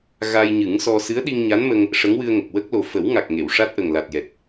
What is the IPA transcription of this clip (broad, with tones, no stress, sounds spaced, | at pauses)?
ɣ a˧ j ɲ ɨ˨˩˦ ŋ s ɔ˧ s ɨ˧˥ ə̯ ɗ i˧ ŋ ɲ a˧˥ n m ə˧ ŋ | ʂ ə˧˥ ŋ w ɨ˧ ə̯ ŋ ə˨˩ k̚ w ə˦˥ k̚ l o˨˩ f ə˨˩˦ w ŋ a˨˩ k̚ ŋ e˨˩˨ w ʂ a˦˥ t̚ ʔ ə˨˩ ŋ l a˨˩ t̚ j ɛ˨˩ t̚